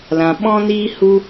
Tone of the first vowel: low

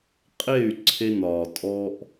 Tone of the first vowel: falling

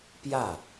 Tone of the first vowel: falling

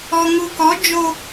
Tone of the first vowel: low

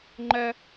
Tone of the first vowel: high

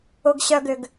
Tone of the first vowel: low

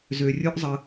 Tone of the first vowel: low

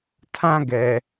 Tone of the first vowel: high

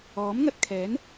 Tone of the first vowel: rising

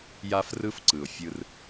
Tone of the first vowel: high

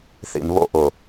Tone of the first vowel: low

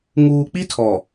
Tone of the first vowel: low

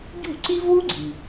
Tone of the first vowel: falling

